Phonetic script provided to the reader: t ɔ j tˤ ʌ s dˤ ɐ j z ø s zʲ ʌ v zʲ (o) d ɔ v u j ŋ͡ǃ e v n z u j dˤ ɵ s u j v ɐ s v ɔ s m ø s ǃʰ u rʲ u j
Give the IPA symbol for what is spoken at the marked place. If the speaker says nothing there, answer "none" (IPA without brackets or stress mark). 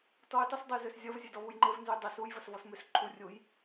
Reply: ɵ